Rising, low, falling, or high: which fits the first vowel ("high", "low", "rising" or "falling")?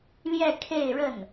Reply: falling